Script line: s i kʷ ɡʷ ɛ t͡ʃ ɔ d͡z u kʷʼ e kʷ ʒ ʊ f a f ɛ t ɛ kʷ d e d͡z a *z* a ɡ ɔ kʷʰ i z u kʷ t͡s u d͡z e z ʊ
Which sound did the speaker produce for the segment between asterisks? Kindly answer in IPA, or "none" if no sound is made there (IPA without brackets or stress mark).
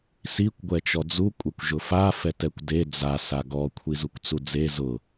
s